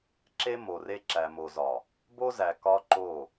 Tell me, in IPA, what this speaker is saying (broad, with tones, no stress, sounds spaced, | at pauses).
ǁ e˦ m o˨ r e˦ ǁ æ˨ m o˨ z ɒ˨ | b o˦ z æ˨ k ɒ˦ ǃ o˦˨